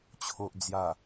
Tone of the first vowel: low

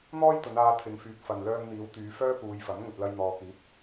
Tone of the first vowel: high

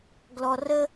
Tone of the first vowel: low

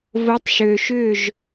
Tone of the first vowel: rising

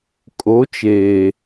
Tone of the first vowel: rising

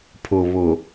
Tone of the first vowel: low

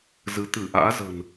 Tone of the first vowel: rising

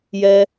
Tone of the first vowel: high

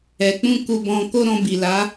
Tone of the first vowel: low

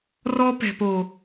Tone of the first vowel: high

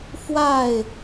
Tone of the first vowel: falling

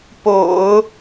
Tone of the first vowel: low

